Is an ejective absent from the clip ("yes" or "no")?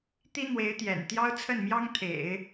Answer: yes